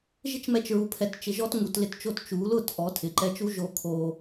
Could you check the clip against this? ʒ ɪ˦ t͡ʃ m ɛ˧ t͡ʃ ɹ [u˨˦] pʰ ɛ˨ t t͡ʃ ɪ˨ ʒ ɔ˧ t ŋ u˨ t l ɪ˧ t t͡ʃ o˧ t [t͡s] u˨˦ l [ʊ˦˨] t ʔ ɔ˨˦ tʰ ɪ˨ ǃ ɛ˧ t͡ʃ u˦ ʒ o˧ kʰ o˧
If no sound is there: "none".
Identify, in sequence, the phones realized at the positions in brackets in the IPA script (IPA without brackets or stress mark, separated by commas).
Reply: u˨, t͡ʃ, ʊ˦˨